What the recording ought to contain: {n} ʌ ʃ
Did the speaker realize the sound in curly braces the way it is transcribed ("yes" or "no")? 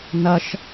yes